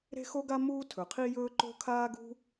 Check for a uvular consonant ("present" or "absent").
present